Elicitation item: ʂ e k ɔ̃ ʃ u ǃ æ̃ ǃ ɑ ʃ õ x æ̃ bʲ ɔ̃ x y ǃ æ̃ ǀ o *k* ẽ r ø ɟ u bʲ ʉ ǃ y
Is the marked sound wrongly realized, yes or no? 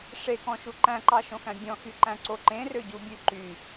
yes